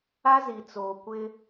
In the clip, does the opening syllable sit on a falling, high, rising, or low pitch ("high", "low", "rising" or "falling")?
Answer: high